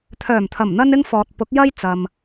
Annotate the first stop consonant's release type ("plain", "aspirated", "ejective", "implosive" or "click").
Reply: aspirated